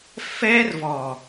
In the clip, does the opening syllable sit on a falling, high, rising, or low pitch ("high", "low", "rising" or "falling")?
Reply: high